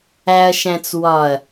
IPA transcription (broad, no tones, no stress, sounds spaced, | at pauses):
æ ɐ̯ ʃ æ̃ t͡s w ɒ ɐ̯